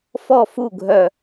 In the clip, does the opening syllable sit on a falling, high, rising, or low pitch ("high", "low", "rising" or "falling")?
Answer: falling